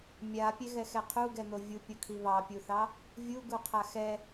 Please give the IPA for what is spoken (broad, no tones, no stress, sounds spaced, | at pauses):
mʲ a pʲ ɛ ɣ ɛ x ɛ qʰ u ɡ ɛ n̪ o vʲ u pʲ o kʰ i β ɑ pʲ u θ ɑ | vʲ u ɡ u qʰ a x ɛ